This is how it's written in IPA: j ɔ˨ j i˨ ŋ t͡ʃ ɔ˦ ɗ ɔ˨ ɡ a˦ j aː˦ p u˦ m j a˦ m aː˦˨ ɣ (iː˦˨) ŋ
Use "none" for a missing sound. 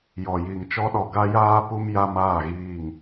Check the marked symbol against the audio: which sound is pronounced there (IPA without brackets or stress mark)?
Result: iː˦˨